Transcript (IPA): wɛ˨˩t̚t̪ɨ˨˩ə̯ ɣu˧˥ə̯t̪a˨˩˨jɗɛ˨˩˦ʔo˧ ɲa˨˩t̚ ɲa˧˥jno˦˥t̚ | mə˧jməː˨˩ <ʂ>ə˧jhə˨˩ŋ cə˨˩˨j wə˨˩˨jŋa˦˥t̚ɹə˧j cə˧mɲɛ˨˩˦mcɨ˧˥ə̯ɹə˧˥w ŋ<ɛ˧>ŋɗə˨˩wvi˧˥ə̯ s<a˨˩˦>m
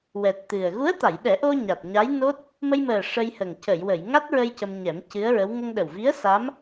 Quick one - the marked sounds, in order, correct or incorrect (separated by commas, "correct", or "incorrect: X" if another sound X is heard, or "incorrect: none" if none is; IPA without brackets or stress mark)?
correct, incorrect: ə˧, incorrect: a˧˥